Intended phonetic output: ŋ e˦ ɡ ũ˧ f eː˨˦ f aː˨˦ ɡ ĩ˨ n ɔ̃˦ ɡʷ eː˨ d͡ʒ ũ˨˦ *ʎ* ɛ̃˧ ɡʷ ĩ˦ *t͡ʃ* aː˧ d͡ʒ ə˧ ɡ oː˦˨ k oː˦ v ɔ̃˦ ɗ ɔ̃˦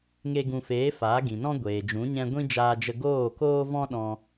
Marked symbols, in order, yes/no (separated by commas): no, no